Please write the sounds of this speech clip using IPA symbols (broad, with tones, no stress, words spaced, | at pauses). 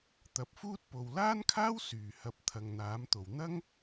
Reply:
t̪ɐ˨˥p̚fuː˥t̚po˨w laː˥nkʰaː˥w syː˨˩hɐ˨p̚ t̪ʰɐ˨ŋn̪aː˨˥mt̪o˨w n̪ɐ˥ŋ